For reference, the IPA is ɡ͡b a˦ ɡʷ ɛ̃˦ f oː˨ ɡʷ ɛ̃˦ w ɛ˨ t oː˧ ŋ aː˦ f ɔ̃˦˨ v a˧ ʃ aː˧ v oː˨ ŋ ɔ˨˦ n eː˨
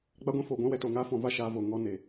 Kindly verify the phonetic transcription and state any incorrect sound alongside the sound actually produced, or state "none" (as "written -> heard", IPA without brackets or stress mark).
none